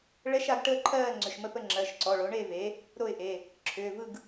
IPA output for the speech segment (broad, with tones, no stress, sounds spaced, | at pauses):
ɭ ɛ˧˥˧ ʃ a˩˥ ɡ ʈ əː˥˨ ǃʰ ɜː˥˨ ŋ͡ǀ ʏ˩˧˩ ʃ m ə˥˨ p ə˥˨ ŋ͡ǁ ɜ˩˧˩ ʃ ǀ ɔ˩˧˩ ɭ o˩˥ ɳ e˥˨ v e˩˥ | ɾ o˥˨ ɪ̯ ʔ e˩˧˩ | ǁʰ ʏː˩˧˩ v ɯ˥˨ ɡ